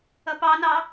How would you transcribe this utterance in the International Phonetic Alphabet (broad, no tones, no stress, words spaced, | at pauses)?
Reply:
ʌpɑnɑ